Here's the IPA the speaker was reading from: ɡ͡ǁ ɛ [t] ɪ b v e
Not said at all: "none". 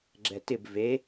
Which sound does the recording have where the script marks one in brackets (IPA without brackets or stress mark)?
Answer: t